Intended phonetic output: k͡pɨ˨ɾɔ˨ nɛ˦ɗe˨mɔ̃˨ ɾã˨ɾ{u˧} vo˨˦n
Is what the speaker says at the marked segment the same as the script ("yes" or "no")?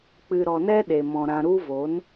yes